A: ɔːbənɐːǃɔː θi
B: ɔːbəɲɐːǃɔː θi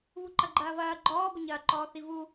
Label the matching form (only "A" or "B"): B